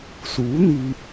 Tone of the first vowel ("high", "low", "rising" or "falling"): rising